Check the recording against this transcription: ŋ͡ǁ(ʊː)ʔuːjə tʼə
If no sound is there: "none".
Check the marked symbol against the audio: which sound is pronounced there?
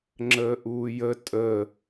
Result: əː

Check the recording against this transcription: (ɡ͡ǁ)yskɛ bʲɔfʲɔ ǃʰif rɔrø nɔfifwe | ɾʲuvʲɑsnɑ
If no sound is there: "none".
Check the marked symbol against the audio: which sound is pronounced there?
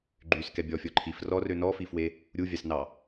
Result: ɡ͡ǃ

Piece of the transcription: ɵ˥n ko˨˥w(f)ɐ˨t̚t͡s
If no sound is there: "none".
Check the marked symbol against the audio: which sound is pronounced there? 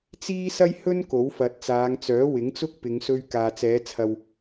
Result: f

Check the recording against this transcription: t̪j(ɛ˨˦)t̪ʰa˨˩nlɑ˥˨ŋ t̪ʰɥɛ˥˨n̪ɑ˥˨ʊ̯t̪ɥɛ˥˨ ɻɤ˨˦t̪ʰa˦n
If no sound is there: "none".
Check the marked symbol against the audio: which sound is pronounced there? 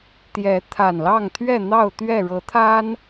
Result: ɛ˨˦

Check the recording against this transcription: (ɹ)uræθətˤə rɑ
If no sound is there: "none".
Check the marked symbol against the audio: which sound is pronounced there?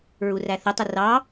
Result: ɹ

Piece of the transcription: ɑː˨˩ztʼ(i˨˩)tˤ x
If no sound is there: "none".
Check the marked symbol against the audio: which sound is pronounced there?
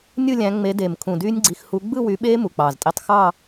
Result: i˧˥˧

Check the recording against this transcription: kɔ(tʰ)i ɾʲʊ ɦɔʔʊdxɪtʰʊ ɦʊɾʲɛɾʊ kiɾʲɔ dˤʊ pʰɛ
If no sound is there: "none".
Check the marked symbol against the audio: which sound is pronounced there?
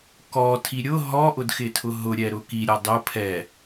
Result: tʰ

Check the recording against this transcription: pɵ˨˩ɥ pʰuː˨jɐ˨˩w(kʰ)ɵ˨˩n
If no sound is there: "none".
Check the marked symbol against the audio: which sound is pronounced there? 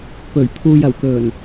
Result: k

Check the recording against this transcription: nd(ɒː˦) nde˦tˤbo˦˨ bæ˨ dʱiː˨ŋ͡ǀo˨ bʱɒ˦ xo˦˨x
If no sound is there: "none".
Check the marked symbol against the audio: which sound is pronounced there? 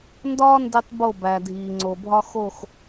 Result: ɒː˦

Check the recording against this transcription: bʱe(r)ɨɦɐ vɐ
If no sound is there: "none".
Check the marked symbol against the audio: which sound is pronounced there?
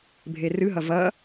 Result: r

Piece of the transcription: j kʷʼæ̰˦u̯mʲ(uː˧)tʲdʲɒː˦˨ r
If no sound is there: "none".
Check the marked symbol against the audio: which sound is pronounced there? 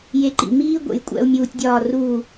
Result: uː˧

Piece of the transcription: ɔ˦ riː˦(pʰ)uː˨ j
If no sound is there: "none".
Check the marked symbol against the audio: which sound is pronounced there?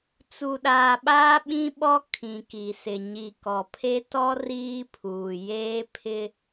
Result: pʰ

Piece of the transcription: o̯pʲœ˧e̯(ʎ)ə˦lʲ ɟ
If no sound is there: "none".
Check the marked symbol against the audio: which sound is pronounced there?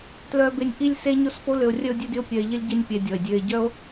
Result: ʎ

